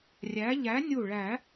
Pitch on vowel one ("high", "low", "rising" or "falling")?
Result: rising